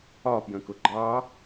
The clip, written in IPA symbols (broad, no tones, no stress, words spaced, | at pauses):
ɒpjə̃kʊ ɡ͡ǃɑ